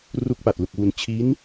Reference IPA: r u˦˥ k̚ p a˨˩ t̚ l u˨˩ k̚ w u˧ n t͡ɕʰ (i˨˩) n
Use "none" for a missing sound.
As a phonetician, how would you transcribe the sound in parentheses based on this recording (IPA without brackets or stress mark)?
i˦˥